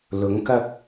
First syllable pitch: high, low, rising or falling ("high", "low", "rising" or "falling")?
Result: rising